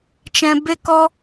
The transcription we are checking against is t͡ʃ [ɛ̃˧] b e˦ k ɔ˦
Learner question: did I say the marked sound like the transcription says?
yes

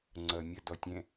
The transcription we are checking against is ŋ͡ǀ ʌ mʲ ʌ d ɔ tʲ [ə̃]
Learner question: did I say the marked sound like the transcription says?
no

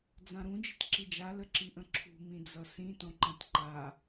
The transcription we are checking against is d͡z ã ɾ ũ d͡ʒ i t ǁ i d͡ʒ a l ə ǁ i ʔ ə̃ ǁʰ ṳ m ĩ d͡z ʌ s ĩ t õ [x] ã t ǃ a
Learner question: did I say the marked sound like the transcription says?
no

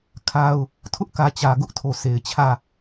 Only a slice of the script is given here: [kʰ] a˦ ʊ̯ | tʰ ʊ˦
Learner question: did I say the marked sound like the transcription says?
yes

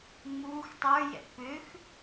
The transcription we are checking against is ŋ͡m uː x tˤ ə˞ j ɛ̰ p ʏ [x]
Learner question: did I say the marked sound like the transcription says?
yes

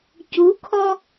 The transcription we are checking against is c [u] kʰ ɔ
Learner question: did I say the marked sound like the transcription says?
yes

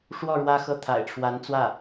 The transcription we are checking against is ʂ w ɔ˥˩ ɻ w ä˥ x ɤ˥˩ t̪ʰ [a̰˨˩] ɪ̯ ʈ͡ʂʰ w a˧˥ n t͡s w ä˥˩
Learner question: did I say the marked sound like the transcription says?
yes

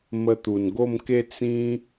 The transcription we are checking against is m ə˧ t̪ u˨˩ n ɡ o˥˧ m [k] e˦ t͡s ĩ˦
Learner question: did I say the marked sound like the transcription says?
yes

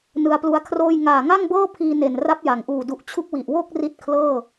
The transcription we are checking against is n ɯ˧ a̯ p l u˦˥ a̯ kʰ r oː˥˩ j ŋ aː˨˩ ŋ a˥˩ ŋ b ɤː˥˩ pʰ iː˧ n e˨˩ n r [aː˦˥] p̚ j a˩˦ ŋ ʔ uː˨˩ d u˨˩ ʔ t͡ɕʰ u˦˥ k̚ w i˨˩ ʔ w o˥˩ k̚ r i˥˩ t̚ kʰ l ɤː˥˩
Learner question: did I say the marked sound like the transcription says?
no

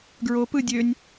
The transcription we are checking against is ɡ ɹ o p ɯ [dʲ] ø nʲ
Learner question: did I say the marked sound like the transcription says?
yes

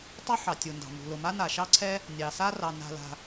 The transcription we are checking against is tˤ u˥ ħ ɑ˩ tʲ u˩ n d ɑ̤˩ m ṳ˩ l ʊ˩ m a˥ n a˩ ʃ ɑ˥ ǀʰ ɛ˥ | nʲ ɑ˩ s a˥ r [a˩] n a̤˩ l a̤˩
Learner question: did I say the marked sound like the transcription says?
no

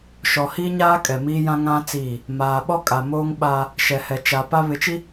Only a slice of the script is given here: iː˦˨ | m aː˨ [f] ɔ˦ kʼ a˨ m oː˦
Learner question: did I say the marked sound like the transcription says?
no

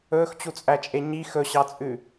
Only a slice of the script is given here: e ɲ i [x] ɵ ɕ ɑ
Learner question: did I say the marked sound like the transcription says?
yes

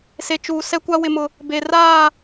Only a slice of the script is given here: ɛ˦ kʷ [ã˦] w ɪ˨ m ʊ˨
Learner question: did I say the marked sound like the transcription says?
no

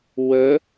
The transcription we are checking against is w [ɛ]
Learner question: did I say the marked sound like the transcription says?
no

